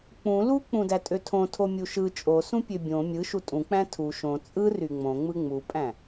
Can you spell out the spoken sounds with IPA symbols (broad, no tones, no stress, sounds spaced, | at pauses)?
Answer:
k͡p ũ l u k͡p ũ d æ tʼ ø tʰ õ tʰ o mʲ u ʃ ɯ t͡ʃʼ o s ũ pʲ ø bʲ õ mʲ ɯ ʃ u tʼ ũ k͡p æ̃ tʰ u ʃ õ t͡sʼ ɯ r y ŋ͡m õ ŋ͡m ɯ ŋ͡m u pʼ æ̃